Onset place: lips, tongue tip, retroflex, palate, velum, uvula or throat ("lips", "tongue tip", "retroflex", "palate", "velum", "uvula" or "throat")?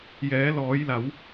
palate